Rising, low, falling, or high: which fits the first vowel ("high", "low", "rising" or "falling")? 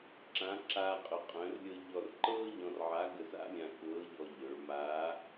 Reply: rising